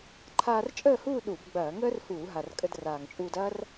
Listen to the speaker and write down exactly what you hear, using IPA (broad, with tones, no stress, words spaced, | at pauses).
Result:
ǃʰaː˧rt͡ʃʼəː˥˨huː˥˨ ɗu˧˩˧b ɡ͡bɐː˧˩˧ŋəː˥r huː˧˩˧ɦa˨˩rkʼə˧d raː˨˩ŋt͡ʃʼuː˧dɐː˥r